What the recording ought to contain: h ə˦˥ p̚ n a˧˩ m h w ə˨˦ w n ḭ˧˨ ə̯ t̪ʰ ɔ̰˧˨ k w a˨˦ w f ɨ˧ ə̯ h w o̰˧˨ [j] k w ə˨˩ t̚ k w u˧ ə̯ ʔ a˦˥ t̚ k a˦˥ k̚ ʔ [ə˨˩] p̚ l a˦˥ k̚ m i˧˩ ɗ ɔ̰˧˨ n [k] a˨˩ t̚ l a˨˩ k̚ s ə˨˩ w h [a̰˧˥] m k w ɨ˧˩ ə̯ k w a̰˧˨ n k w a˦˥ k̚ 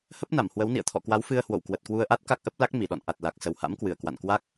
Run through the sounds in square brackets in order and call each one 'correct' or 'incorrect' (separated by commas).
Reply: incorrect, incorrect, incorrect, correct